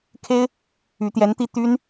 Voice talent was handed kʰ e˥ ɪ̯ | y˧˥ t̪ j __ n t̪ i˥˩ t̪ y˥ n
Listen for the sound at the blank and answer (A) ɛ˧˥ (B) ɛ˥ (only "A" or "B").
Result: A